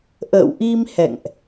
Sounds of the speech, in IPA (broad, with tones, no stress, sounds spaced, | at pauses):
ʔ ə̰ː˧˨ w ʔ i˧ m h ɛ̰˧˨ ŋ ʔ